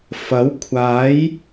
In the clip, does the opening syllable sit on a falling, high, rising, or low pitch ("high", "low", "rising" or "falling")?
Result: rising